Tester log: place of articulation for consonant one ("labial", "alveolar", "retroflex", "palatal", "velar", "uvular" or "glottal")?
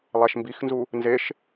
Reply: alveolar